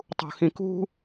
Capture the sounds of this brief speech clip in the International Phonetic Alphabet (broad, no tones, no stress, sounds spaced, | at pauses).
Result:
tˤ ṳ x ĩ k ṳ